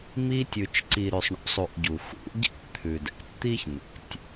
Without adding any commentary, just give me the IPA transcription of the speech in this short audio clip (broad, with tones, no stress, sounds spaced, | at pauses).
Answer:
m i˧ tʲ ʉ˨ t͡ʃ ǀ i˨ ɾ ʉ˨ sˤ ɳ ṵ˦ sˤ u˨ ʔ ɟ u˨ x ṵ˨˦ ɟ ɛ̰˦ ʔ t̪ʰ ʉ˨ d ɛ̰˨ tʲ t̪ i˦ ç n̪ ɛ̰˨ tʲ